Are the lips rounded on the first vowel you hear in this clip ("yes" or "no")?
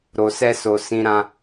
yes